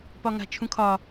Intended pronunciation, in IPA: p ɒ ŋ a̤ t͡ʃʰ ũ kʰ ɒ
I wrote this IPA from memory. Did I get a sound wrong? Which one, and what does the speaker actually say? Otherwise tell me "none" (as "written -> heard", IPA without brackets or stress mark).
none